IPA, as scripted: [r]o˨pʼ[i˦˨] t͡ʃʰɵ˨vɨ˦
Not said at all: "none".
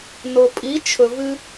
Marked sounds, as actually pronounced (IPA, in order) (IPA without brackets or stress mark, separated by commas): n, i˨˦